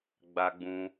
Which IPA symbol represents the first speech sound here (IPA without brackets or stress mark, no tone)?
ɡ͡b